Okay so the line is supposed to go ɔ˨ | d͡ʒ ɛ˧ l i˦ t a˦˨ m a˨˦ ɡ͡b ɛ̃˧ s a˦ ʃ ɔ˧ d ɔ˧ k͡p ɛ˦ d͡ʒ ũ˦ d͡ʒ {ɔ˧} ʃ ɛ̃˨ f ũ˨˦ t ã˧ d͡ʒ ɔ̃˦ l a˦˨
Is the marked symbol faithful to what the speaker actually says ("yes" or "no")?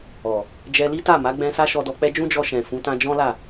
yes